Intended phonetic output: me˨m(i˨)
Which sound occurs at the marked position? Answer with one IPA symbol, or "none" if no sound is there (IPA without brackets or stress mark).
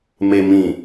ĩ˨